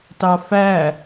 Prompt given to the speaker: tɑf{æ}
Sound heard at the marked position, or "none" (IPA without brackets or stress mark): æ